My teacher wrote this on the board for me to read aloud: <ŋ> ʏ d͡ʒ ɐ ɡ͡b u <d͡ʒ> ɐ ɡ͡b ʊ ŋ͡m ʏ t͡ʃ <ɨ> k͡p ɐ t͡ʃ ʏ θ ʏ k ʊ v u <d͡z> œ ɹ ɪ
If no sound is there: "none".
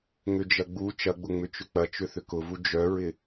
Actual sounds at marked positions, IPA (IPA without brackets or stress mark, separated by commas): ŋ, t͡ʃ, ʏ, d͡ʒ